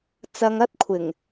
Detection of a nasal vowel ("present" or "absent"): absent